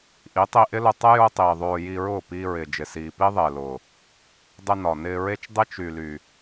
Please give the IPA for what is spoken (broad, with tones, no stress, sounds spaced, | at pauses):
ʔ i˨˦ tˤ i˧ ʔ ɪ˦ l ʊ˧ tˤ ə˦ j ʊː˦ tˤ iː˨ ðˤ oː˧ j i˧ ɹ ʊː˦˨ p iː˧ ɹ ɪː˨ d͡ʒ ɪ˨ s iː˨ p i˦ ðˤ ɪː˨ l ʊː˨ | dˤ ɪ˧ n ɒ˨ n ɪː˧ ɹ e˦ t͡ʃ dˤ ɪ˦ t͡ʃ y˨ l y˨